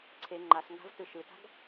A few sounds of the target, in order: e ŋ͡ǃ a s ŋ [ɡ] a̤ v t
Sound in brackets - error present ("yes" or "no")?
no